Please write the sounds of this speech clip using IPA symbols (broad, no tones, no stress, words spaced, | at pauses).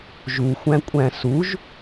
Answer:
ʒuxʷæ̃kʷʼæ̃ suʒ